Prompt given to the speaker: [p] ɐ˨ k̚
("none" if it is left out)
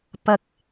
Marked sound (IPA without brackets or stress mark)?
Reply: p